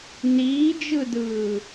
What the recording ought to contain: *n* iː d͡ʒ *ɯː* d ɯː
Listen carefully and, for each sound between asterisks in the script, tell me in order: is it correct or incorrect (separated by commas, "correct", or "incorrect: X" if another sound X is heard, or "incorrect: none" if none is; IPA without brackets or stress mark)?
correct, incorrect: ɯ